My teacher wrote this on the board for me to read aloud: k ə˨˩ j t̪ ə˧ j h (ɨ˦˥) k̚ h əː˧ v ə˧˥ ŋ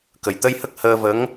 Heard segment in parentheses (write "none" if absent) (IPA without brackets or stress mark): ə˦˥